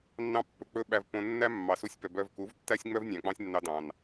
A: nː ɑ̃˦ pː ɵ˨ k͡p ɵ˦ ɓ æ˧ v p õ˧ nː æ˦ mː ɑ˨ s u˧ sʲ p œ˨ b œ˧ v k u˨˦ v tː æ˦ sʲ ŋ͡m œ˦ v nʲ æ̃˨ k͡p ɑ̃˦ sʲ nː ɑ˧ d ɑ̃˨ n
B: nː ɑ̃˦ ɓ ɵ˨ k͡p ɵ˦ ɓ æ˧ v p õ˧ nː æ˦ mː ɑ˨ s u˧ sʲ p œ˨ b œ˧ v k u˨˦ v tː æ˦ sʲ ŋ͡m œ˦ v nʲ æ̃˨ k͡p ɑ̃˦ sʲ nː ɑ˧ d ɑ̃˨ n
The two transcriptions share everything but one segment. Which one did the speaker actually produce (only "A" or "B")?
A